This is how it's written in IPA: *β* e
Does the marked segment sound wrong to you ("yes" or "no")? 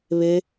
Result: no